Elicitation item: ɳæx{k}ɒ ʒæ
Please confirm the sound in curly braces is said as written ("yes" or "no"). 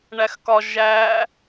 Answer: yes